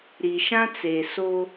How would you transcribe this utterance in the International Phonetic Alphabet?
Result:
ɾ i˨ ʃ ã˦ t͡s e˨ s o˦

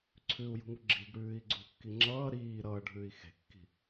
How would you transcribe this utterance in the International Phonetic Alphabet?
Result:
ǀʰ ʉ u̯ j ṳ ŋ u ɡ͡ǁ i̤ ɡ ɽ ʉː i̯ ɡ͡ǀ ṳ kː i ŋ͡ǁ ʌː ɾ iː ɾ ʌː ɖʱ ʉː i̯ x e̤ kː i̤

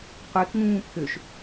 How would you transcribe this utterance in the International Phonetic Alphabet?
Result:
qʷ e k ŋ ũː pʰ ø ʃ

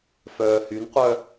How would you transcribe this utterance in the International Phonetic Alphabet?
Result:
f œː h y n qʷ œ

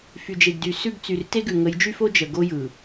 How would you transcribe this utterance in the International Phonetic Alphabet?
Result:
f y˨ d͡ʒ e˨ ɡ d y˨ s ʉ˦˨ ɡ t͡s y˨ r t e˦ ɡ ʉ˨ ŋ ə˨˦ j d͡ʒ y˦ f o˦ d͡ʒ ə˨ ɡ o˦ j ɯ˨

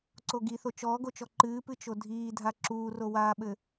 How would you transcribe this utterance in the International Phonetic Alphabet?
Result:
ǀ o ɡ i θ o t͡ʃ ɔː ɡ o t͡ʃ ɔ ǃ ɨː p ɨ t͡ʃ o dʱ iː dʱ a ǁ uː r o w aː ɓ ɘ

